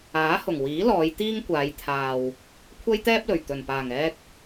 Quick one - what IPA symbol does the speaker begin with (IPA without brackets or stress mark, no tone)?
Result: aː